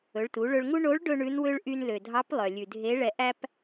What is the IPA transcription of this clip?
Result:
ɵ˩˧ɭtu˩˧ɭɵ˧ɭŋu˥ ɳo˧˥ɭ ɖɵ˥ɳʉ˧˥nwø˥ɭ ʔy˧nlø˩dʱɑ˧˥p lˠœ˩lʲʉ˩ dʱe˧˥ ɭɛ˧ʔæ˥p

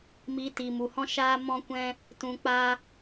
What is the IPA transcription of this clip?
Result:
mi˨˦ tiː˨mu˨hɔ̃˦ʃaː˦ mɔ̃˦kʷɛ̃˦ | tũ˧k͡pa˦

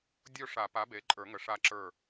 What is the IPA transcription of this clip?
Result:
dʲo˦˨ʂa˨˩˦pa˩˥be˩˥ ǃʼə˞˨˩˦ŋə˨˩˦ ʂa˦˨ ǁə˞˦˨

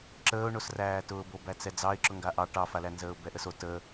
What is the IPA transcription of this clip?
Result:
ǁəːʊ̯ɳosræːtʊː bobæt͡sɛd͡zɑɪ̯ ǁʊŋɡaʔɑ ʈɑfalæ nzəːʊ̯bɛʔəso tə

